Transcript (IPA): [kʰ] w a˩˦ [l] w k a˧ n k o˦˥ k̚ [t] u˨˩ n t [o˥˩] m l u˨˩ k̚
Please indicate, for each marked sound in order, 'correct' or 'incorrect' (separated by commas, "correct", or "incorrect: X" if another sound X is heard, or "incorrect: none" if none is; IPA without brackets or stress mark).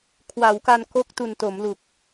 correct, incorrect: none, correct, incorrect: o˩˦